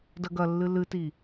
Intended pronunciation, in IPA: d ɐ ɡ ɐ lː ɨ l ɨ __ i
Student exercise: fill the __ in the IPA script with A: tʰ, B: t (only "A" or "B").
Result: B